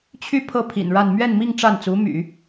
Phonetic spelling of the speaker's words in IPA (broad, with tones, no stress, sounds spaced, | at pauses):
t͡ɕʰ y˥˧ pʰ ɤ˥˩ pʰ ḭ˨˩ n ɻ a˥˧ n m ɥ ɛ˥˧ n m i˥˧ ŋ ʈ͡ʂ a˥˩ n t͡s u˧˥ m y̰˨˩˦